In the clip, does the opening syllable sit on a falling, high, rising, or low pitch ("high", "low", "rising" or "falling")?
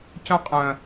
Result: high